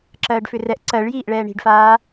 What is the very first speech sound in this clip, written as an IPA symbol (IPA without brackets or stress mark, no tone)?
ǁ